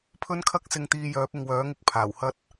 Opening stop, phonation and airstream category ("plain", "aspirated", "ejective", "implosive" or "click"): aspirated